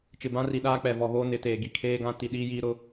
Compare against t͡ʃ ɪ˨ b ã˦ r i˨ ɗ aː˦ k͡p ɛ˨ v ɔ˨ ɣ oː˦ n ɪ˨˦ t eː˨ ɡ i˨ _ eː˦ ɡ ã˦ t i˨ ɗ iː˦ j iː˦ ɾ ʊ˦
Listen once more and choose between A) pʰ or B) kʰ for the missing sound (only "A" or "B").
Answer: B